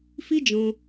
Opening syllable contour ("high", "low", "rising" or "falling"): high